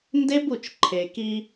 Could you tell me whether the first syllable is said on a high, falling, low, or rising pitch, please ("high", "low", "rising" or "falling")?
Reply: high